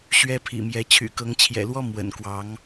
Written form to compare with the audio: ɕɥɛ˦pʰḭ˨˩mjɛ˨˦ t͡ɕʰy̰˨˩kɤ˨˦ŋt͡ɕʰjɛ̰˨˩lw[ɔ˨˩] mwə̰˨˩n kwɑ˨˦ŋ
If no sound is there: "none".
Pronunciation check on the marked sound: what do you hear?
ɔ˦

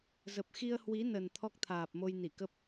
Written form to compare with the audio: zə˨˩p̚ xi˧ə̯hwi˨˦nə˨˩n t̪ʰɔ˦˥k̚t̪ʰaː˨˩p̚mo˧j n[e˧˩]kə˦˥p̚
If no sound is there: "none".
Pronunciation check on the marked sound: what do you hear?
i˧˩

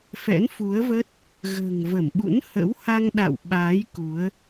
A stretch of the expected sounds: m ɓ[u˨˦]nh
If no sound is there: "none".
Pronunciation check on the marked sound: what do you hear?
ṵ˧˥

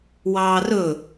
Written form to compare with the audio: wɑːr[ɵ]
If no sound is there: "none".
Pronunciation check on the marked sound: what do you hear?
ɵ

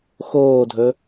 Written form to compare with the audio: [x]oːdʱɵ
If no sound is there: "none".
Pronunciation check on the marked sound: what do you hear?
x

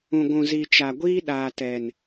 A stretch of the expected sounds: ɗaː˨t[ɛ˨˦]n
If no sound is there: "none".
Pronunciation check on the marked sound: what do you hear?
ɛ˨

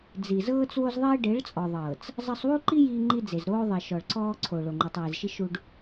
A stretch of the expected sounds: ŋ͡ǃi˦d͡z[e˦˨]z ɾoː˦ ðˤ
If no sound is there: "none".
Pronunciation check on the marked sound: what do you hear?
e˨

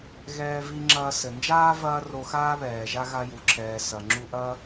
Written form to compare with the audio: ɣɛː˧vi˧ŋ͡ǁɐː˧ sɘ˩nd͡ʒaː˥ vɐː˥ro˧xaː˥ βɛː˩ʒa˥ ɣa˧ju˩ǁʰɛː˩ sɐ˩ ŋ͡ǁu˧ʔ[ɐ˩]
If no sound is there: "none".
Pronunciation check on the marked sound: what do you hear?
ɐ˥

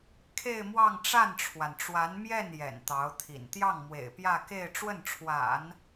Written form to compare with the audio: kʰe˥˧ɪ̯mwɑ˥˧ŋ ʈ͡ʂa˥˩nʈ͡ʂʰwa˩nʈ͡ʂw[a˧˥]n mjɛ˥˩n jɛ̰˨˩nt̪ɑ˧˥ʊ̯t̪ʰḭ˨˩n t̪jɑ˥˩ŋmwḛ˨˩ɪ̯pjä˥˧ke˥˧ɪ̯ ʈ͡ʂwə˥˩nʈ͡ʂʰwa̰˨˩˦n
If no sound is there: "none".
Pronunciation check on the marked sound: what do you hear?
a˧˥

